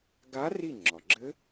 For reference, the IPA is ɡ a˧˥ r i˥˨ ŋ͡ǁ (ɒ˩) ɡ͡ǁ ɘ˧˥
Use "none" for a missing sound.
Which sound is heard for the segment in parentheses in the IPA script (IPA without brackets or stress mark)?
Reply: ɒ˩